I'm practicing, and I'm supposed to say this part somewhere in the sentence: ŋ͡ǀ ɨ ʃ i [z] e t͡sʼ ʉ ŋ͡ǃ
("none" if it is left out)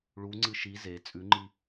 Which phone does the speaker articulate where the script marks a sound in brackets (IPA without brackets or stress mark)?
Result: z